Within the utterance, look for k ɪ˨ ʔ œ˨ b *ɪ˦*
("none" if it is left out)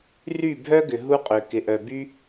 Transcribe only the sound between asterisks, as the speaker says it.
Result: y˦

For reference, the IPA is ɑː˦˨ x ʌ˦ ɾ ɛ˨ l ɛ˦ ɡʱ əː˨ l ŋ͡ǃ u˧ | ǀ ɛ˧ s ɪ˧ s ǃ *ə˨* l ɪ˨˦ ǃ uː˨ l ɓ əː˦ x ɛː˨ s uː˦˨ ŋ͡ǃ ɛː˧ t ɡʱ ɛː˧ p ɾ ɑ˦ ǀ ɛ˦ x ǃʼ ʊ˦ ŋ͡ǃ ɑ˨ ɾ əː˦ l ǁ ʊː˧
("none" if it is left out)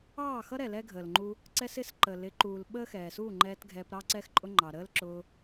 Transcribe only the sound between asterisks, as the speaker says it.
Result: ə˨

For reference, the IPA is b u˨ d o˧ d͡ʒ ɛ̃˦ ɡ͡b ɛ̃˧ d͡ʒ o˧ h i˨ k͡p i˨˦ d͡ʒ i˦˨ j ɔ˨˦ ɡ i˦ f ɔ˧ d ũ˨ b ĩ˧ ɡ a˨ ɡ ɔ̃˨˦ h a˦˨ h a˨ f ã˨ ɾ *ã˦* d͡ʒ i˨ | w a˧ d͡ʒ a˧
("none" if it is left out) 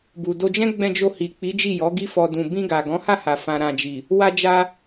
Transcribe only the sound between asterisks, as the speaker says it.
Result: ã˨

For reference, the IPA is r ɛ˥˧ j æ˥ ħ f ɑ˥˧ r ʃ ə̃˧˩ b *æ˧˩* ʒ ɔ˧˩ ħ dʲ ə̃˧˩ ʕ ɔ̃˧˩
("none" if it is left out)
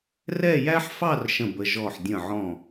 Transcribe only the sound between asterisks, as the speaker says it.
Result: ə˧˩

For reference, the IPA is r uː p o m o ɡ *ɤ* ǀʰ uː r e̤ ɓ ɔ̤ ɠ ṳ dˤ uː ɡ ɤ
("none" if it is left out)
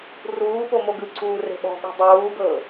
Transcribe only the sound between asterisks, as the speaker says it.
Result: ɯ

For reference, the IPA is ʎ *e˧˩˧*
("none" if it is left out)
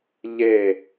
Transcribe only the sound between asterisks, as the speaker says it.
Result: e˥˨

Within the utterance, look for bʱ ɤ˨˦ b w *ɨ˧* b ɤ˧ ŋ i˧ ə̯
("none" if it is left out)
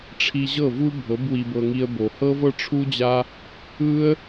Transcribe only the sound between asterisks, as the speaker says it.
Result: i˧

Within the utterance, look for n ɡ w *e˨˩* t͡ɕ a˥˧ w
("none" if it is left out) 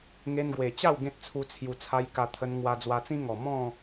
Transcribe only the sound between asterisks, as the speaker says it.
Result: e˨˩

